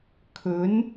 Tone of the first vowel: rising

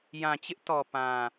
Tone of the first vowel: low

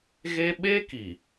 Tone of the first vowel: high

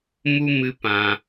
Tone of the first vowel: high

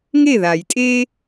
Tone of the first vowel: falling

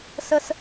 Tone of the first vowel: high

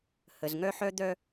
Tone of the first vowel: low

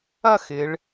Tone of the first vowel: falling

